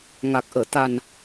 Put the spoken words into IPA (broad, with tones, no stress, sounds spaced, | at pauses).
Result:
ŋ a˨˩ k̚ ʔ əː˧˩ t̪ a˨˩ n